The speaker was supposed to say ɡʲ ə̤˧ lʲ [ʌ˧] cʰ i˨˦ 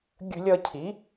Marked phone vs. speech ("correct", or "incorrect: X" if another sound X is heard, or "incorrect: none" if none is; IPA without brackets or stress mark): correct